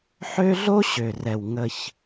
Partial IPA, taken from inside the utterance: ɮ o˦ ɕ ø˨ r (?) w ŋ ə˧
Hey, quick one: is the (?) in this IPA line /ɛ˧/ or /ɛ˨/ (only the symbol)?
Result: ɛ˨